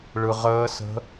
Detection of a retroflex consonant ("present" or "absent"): present